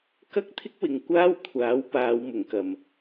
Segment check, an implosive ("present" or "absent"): absent